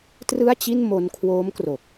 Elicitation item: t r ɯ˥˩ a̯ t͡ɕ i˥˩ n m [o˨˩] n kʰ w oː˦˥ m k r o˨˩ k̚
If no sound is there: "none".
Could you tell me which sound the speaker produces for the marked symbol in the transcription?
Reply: o˧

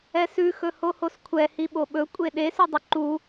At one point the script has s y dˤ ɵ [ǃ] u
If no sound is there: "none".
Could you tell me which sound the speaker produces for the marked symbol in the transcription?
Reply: ǃ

